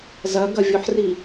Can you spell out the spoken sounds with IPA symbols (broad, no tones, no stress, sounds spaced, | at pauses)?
z ɐ ɡ ɐ vʲ o ħ r i